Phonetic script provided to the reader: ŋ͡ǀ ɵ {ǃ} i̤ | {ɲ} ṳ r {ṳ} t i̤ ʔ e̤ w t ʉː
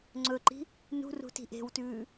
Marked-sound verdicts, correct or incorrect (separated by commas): correct, incorrect, correct